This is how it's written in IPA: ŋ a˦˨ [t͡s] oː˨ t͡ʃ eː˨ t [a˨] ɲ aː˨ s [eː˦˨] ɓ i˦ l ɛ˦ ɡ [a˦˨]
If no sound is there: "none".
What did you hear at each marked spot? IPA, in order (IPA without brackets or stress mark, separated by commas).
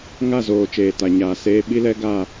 z, a˨, eː˦, a˦˨